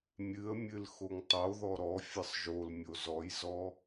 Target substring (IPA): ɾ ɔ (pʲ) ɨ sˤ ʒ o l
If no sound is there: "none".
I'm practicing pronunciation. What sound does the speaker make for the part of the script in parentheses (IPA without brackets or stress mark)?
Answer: fʲ